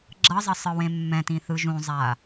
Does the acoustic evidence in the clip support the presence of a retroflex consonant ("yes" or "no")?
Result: no